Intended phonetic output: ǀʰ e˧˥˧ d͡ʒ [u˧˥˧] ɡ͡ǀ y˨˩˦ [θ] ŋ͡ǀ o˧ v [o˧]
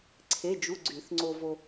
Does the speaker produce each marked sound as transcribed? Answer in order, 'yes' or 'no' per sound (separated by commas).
yes, yes, yes